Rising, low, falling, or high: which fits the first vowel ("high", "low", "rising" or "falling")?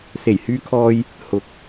low